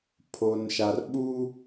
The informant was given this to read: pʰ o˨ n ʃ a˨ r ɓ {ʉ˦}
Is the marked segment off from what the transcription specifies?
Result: yes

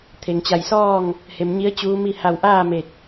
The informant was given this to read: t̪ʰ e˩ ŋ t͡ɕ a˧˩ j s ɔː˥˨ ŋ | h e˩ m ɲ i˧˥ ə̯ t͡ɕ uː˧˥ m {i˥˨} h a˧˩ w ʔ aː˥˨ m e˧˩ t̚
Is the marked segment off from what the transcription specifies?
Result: no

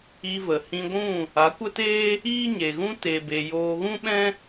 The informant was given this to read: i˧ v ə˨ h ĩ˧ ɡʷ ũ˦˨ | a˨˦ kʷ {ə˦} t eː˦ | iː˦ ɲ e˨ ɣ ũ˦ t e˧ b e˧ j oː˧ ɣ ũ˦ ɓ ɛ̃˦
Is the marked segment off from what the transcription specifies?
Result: no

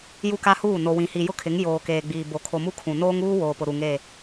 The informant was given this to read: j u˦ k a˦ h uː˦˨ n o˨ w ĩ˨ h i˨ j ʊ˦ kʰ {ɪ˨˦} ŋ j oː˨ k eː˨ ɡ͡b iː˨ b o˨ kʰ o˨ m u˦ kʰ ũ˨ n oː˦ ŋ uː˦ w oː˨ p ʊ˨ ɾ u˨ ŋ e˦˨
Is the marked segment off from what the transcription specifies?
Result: no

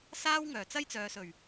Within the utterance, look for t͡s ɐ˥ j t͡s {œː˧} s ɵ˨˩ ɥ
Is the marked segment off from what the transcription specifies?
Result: yes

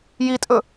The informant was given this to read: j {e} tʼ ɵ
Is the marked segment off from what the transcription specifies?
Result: yes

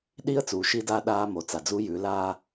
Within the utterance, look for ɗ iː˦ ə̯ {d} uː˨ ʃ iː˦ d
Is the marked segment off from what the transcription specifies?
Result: yes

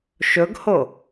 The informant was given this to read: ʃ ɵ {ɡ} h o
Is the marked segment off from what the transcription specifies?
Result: no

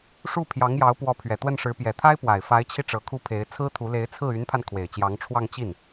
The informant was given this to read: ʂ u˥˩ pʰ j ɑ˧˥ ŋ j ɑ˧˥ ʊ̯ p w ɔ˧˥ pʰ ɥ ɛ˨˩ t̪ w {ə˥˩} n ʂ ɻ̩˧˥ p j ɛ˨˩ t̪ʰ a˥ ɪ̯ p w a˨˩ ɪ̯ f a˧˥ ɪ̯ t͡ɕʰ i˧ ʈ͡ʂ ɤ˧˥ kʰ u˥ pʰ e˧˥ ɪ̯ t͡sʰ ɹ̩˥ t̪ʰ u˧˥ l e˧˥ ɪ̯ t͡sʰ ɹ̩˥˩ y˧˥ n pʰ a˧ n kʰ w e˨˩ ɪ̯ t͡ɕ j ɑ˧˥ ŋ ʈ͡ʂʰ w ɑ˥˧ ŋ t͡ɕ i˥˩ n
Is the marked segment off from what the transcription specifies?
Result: no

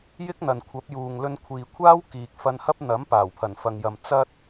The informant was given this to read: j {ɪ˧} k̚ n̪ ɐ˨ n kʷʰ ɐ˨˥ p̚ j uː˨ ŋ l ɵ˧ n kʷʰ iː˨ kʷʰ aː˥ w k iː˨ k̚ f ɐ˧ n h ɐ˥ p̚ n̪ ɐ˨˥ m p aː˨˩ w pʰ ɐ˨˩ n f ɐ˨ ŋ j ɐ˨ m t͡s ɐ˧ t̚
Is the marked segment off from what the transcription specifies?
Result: yes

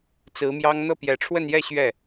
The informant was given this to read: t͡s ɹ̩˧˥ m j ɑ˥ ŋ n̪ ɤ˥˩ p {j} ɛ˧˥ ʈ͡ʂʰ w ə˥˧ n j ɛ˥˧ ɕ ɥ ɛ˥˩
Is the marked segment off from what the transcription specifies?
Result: no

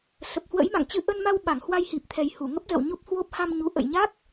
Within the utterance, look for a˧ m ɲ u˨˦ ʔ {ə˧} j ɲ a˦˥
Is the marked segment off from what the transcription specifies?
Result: yes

